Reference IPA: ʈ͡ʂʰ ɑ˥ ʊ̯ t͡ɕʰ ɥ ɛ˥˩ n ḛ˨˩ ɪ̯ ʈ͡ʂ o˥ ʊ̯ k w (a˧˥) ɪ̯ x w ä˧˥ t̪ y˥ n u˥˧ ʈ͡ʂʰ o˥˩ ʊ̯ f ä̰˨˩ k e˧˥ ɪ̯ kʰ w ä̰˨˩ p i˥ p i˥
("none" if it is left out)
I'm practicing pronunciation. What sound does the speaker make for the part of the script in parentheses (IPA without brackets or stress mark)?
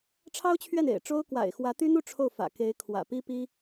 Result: a̰˨˩